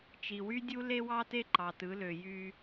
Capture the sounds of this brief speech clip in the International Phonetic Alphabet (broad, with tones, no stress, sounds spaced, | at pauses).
t͡ʃ i˨ w y˦ dʲ u˦ l e˦ w ɑ˦ t e˦ ǃ ɑ˨ t ɯ˨˦ l ø˨ j y˦